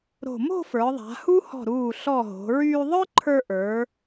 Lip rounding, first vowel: rounded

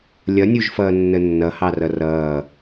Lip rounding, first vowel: unrounded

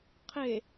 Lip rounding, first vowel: unrounded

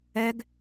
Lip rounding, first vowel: unrounded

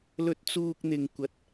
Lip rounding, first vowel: rounded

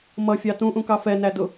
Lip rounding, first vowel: unrounded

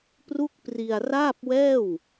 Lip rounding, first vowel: rounded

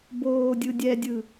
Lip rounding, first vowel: rounded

